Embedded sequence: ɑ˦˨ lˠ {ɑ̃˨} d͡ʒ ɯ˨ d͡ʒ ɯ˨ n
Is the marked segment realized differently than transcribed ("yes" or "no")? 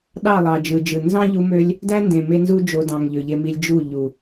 yes